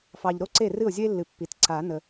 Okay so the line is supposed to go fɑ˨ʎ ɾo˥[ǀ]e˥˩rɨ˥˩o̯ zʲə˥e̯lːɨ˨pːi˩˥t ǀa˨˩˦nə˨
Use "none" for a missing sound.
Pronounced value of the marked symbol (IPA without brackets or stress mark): ǀ